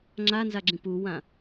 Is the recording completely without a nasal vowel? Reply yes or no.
no